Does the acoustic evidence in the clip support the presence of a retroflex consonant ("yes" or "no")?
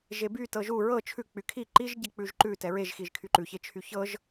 no